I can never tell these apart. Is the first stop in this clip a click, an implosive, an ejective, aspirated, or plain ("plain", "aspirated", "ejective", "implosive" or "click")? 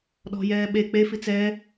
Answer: implosive